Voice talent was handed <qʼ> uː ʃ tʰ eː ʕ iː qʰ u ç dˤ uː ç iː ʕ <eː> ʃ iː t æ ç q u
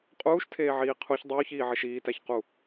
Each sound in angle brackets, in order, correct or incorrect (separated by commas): correct, incorrect